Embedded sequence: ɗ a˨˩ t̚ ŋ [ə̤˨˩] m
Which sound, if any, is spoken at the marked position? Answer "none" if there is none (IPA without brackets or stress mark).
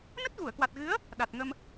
ə˧